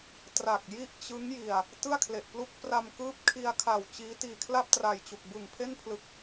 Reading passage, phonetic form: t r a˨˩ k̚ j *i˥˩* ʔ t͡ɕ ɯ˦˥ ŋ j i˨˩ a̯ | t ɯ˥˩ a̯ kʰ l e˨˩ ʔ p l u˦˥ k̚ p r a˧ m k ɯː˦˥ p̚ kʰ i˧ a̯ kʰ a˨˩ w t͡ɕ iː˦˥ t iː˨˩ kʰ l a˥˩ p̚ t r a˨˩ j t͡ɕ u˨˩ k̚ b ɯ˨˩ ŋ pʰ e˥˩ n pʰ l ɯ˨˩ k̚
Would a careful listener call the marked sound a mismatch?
no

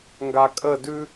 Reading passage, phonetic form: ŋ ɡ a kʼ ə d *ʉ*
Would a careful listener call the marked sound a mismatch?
no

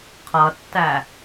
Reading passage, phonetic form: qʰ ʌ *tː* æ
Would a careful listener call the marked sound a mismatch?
no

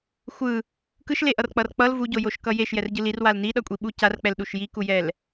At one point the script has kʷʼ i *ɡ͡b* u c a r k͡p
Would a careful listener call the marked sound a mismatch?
yes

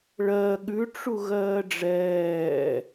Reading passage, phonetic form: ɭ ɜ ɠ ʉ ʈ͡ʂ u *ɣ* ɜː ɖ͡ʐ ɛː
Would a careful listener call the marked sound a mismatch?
no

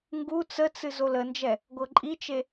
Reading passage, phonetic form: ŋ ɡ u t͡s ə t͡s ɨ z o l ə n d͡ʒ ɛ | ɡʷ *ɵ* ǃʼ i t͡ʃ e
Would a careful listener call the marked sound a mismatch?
yes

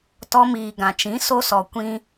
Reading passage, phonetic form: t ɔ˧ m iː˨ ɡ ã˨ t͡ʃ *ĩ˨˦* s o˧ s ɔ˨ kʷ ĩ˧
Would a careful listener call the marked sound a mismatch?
no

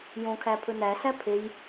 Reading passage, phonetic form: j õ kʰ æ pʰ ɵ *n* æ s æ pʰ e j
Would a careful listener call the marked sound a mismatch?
no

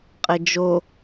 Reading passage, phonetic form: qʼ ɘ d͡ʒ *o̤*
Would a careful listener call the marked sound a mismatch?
yes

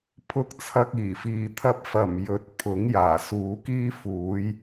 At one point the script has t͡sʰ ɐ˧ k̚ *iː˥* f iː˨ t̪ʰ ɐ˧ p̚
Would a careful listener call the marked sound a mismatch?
yes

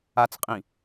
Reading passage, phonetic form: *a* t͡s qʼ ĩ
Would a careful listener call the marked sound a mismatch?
no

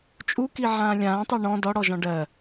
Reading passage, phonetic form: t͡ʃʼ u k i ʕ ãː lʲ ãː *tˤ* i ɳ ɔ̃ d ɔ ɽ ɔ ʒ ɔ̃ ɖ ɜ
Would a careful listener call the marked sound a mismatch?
no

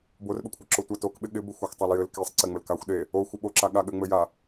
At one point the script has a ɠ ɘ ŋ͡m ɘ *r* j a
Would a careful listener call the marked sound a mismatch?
yes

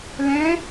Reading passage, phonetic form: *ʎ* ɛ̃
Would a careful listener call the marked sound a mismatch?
yes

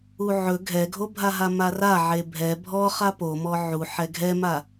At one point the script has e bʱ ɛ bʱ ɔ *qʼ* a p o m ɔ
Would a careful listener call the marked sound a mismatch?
yes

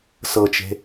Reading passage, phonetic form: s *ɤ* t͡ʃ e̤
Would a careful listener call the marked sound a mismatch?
no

